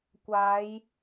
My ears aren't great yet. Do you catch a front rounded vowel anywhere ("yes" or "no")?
no